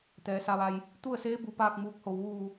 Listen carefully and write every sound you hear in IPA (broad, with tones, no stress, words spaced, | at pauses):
t̪ɛː˩sa˩˧ʋa˩j | t̪u˥˨ə̯seː˧˥ bu˧paː˥˨k̚muː˧k̚ho˧˩w ʋuː˧˩